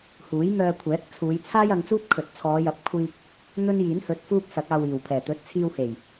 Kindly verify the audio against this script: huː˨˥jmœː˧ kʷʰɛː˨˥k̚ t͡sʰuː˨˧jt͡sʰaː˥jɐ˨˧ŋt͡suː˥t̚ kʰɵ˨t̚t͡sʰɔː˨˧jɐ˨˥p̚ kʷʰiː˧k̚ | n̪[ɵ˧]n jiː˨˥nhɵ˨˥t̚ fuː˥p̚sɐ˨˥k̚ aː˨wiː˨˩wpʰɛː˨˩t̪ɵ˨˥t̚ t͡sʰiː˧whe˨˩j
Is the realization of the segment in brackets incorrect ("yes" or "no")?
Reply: yes